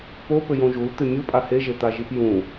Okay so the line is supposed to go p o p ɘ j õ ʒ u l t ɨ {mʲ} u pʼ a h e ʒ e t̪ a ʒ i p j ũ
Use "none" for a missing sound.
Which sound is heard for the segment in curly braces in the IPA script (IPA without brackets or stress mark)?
mʲ